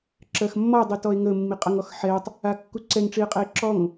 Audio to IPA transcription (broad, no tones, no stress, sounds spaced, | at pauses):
ǁ ɜ x mː ɔ dˤ i t ɔ e̯ ŋ ə mː i qʼ ʌ ŋ ɔ x ħ ɛ tˤ | a kː u ǀ ɛ ŋ ʈ͡ʂ i e̯ qʼ ɛ e̯ ǁ ɔ ŋ